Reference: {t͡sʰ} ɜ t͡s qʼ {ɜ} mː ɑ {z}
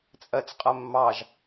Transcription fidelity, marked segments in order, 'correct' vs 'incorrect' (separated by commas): incorrect, correct, incorrect